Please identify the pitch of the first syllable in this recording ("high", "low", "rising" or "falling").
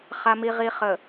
low